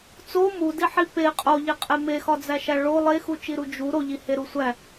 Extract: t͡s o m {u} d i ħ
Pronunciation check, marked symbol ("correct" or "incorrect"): correct